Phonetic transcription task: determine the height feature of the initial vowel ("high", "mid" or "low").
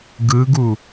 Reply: high